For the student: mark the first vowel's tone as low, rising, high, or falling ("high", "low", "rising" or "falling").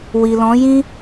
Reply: low